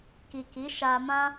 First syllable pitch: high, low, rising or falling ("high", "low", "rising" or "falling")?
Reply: low